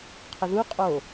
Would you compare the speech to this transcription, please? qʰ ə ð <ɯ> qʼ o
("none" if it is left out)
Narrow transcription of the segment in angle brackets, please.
u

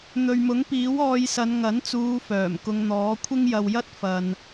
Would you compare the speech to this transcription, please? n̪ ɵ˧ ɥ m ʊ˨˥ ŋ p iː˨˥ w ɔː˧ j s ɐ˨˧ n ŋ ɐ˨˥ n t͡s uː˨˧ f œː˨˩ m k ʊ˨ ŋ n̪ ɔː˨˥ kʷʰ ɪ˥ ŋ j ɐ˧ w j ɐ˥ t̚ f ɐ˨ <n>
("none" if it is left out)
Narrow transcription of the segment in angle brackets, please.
n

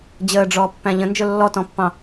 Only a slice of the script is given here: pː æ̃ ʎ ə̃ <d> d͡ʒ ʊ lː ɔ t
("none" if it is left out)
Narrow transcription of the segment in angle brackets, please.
n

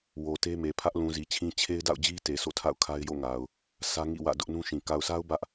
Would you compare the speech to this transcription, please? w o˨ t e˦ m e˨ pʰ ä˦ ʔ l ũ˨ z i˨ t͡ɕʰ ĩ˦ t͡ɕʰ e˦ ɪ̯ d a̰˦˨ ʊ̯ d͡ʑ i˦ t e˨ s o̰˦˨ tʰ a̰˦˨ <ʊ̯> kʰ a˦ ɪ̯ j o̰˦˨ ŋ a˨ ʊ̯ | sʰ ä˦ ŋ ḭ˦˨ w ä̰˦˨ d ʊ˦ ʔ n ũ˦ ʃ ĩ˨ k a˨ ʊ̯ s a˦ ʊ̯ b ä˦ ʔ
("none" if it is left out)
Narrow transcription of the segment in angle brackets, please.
ʊ̯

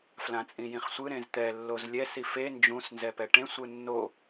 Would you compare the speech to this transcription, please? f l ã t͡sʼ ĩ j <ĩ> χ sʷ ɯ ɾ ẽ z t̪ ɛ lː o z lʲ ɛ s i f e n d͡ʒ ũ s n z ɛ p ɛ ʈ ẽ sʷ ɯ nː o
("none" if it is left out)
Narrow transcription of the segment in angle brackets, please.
ĩ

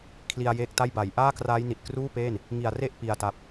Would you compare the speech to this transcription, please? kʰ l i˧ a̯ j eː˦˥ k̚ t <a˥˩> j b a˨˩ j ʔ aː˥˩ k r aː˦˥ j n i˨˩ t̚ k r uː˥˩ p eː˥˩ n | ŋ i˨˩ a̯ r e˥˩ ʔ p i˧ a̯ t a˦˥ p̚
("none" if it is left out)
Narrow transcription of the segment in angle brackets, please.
a˥˩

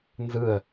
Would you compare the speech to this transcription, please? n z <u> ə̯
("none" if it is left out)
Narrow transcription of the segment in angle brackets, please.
ɯ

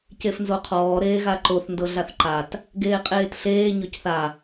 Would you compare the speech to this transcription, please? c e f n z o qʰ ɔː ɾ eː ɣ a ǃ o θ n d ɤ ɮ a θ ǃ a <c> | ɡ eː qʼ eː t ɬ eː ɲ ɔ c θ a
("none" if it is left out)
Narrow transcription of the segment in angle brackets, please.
t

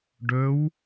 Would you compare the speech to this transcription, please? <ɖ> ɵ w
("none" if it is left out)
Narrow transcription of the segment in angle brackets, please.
ɖ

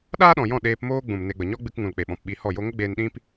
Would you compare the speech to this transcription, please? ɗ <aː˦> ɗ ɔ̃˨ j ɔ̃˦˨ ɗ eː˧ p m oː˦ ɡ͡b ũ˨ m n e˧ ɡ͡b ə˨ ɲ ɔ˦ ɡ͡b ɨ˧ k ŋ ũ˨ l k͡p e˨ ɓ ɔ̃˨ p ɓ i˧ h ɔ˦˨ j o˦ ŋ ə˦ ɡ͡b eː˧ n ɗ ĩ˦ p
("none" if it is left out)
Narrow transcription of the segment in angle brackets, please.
aː˦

